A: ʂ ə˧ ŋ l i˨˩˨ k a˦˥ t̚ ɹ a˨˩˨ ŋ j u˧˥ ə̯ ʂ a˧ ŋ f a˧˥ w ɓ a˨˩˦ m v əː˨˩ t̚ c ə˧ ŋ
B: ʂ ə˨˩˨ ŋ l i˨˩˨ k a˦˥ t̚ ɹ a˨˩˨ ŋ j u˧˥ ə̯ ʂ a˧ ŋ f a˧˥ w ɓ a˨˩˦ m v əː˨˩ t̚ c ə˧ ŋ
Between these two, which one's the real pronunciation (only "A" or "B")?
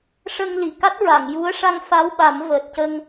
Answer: A